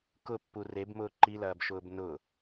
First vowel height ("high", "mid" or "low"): high